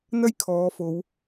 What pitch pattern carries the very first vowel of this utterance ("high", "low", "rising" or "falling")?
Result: high